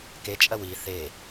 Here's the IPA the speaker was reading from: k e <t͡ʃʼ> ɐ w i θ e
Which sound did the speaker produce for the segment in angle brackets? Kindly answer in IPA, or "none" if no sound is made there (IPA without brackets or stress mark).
t͡ʃʼ